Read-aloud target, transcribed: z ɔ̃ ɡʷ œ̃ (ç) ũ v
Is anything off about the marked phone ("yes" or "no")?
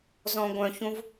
no